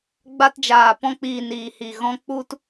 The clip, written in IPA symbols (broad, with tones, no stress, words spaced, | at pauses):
ɡ͡ba˧td͡ʒaː˨ pɔ̃˧k͡piː˨niː˨hi˨ ɣɔ̃˧ k͡pu˦t